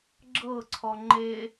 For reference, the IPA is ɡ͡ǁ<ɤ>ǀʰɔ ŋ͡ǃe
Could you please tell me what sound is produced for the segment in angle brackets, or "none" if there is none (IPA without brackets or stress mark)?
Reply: ɤ